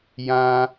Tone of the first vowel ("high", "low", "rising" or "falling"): high